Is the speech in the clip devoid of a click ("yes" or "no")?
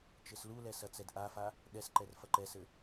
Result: no